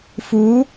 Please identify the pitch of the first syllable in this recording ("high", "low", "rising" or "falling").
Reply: rising